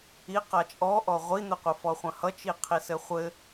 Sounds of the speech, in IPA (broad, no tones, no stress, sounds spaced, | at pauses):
i q a t͡ʃʼ ɔ ʔ ɔ ʁʷ i n̪ ɘ qʷ ʌ f ɔ χʷ ɐ̃ h ʌ t͡ʃ i qʰ i s ɘ χʷ ɘ